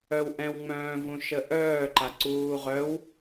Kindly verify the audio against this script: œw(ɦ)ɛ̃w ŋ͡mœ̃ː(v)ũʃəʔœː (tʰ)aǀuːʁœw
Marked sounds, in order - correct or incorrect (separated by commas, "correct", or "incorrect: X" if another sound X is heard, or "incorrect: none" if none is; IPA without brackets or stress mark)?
incorrect: ʔ, correct, incorrect: ǃ